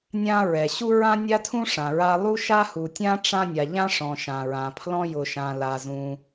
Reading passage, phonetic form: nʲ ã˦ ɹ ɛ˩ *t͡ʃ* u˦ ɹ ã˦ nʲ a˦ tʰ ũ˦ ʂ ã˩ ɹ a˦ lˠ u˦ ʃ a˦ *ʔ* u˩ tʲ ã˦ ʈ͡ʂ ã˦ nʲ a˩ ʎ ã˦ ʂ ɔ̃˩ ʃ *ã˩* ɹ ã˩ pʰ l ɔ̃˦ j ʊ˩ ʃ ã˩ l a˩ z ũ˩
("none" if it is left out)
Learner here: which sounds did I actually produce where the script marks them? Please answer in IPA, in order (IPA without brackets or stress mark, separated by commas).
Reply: ɕ, h, ã˩